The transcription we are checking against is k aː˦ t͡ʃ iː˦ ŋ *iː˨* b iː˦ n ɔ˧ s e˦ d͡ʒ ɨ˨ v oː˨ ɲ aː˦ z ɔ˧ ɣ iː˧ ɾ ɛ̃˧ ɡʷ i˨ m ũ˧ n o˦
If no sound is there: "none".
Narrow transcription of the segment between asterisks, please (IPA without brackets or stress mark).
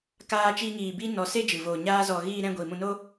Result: iː˧